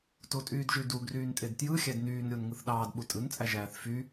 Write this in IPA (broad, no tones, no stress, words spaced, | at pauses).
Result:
totʼyːdʒydu ɡryːntʼedtjɯxʲæd nyːnɾʲon ŋɯθɗɑːd ɓutʼɯnt͡sʼæ ʒæːθfy